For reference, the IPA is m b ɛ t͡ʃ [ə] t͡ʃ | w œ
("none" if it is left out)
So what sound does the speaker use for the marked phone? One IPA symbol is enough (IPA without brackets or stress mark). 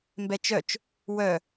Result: œ